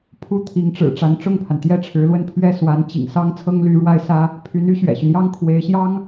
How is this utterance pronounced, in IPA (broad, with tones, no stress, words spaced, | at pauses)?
pʰu˥˩t̪ʰi˧˥ŋʈ͡ʂɻ̩˨˩ ʈ͡ʂa˧˥nʈ͡ʂʊ˥˩ŋpʰa˩n t̪jɛ˥ʈ͡ʂʰɻ̩˧˥lwə˥˧n pʰɥɛ˥˩swa˧˥n t͡ɕḭ˨˩ŋsɑ˥ŋ t͡sʰɤ˥ŋly˧˥ɻwa˥˩ɪ̯sä˥ | pʰy˧˥ny˧˥ ɕɥɛ̰˨˩ɕy˦njɑ˥ŋ kʰwe˧˥ɪ̯ɕjɑ˥ŋ